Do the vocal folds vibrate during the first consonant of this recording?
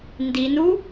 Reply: yes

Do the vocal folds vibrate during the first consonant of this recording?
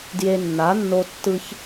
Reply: yes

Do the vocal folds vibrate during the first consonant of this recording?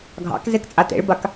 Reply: yes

